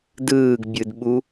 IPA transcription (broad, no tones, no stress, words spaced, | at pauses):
dɯːɡbʲɯdɓu